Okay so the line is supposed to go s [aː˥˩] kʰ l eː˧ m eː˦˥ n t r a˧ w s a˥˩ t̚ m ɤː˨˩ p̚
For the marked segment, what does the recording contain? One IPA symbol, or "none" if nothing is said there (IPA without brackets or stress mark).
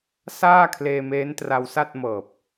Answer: aː˥˩